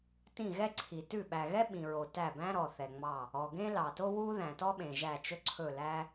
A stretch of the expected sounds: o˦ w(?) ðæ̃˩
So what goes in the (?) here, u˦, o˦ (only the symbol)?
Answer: u˦